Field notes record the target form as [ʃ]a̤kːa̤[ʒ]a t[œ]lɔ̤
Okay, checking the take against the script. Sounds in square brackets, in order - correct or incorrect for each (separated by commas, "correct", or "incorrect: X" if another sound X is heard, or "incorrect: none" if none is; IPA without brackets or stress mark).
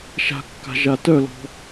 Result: correct, correct, correct